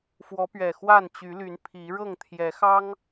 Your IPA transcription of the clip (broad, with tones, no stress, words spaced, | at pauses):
fwɔ˨˦pɥɛ˨˩xwa˥˨n t͡ɕy˨˦ly˨˦n pʰi˨˦ ɻɤ˥˨ŋt̪ʰjɛ˨˦xɑ˦ŋ